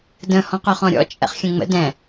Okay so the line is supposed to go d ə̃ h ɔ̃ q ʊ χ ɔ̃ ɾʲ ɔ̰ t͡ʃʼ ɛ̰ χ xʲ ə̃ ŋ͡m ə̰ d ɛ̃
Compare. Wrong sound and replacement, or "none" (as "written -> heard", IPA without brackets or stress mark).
none